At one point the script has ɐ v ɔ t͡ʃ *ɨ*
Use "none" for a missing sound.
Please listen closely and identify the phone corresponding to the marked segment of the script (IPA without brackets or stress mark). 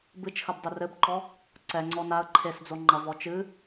ɨ